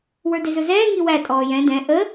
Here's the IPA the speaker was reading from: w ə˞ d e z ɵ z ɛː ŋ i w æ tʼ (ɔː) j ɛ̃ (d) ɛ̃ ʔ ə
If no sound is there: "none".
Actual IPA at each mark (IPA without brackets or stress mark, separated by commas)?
ɔː, d